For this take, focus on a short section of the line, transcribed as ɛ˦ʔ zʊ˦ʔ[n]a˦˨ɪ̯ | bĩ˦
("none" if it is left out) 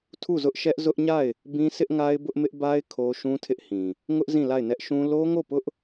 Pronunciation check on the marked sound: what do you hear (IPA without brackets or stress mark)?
ɲ